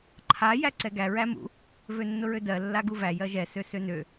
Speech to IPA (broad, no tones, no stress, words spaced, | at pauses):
ǃʰa jæǀɛɡæ ɹæmṵ | vønːʊɹødɜ lːaɡuvæ jɜʒɛ søsønø